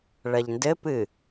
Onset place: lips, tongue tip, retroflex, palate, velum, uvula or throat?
retroflex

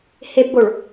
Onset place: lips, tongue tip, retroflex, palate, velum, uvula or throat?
throat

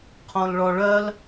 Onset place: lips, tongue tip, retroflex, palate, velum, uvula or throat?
uvula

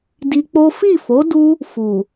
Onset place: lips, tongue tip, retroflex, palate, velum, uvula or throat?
tongue tip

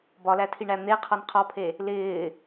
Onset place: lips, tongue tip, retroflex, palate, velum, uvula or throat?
lips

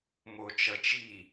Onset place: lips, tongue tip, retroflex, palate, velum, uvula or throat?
lips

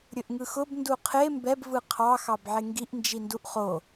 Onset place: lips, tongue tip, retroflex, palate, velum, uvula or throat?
tongue tip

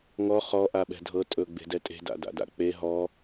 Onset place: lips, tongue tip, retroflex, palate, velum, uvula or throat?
velum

